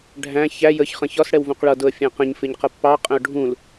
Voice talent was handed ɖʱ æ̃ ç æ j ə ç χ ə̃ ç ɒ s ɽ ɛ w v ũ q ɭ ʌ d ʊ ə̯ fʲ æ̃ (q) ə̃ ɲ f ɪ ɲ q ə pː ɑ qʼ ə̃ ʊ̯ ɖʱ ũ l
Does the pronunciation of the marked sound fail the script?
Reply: no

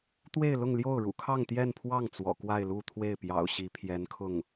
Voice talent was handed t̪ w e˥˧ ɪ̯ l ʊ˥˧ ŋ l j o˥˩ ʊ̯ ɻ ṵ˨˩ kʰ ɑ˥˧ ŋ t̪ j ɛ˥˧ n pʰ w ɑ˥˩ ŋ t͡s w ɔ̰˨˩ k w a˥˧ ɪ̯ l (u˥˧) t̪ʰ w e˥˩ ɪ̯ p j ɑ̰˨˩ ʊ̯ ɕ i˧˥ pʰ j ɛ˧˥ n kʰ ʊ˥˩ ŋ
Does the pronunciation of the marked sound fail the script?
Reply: no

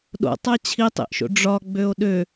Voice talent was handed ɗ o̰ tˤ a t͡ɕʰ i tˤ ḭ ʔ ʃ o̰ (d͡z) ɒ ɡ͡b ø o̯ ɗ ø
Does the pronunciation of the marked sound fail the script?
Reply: yes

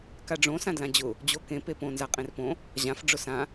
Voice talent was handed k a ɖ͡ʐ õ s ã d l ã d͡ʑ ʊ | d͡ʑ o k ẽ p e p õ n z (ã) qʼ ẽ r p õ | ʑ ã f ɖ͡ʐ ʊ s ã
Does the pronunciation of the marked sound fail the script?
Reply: yes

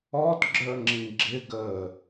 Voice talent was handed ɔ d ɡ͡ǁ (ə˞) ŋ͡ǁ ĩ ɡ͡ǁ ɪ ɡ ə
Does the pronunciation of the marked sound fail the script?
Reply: no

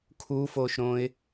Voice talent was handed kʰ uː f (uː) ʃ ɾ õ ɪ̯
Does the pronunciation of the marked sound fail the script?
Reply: yes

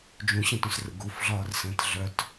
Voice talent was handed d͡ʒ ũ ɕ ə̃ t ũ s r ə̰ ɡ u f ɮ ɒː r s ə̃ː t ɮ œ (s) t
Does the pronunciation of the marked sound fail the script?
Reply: yes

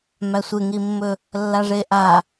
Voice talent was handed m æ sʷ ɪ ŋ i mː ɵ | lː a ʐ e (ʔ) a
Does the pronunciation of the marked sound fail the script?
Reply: no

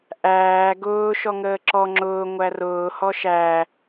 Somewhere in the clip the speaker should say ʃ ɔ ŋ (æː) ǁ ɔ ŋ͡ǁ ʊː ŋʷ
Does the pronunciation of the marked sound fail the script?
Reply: yes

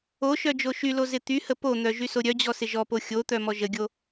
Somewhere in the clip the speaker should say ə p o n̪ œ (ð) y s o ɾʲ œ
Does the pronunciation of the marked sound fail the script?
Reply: yes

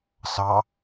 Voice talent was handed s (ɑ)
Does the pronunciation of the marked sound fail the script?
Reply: no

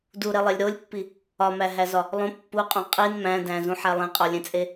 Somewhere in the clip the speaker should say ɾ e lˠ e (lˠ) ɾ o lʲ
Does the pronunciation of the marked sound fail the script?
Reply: yes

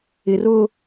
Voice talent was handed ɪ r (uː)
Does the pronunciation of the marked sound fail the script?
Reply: yes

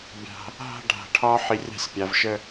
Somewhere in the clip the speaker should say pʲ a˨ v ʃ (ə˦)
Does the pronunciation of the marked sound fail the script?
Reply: no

